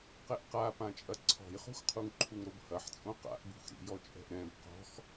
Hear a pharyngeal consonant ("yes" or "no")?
yes